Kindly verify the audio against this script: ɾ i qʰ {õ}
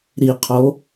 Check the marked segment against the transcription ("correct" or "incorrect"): incorrect